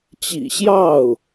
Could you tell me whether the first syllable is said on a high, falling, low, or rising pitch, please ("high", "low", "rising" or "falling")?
low